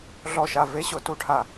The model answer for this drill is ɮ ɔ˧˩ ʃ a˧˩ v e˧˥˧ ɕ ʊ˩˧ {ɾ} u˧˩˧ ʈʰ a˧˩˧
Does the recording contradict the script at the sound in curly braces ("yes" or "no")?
yes